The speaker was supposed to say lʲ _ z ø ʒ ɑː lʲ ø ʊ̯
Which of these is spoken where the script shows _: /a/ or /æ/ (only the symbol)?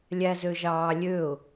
æ